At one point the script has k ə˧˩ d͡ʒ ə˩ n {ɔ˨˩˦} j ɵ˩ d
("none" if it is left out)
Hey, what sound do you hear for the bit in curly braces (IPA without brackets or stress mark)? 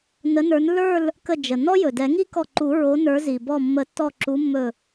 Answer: ɔ˥